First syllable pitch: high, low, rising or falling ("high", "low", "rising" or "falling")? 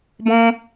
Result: high